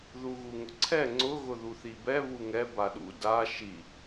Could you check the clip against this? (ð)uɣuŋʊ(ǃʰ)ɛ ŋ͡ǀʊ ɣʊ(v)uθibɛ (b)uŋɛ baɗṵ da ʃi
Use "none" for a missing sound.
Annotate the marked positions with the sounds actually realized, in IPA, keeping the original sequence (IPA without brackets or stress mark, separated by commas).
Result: ð, ǀʰ, ð, β